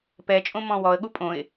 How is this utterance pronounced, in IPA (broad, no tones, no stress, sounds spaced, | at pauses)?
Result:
p ɛ t͡ʃʼ õ m ɔ̃ w ɔ ə̯ ɠ u pʼ õ ɪ̯